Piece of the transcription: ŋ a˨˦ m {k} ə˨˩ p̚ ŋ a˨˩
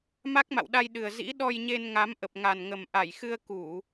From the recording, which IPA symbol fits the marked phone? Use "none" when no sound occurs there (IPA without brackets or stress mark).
ʔ